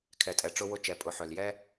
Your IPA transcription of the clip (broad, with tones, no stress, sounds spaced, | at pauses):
kʰ ɛ˩ tʼ ɛ˩ ʈ͡ʂ ʊ˧ w ʊ˧ t͡ʃ ɛ˩ pʼ ʊ˩˧ ħ œ˩ l j ɛ˥